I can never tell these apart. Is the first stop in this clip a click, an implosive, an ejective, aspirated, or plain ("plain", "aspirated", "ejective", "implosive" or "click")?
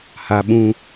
implosive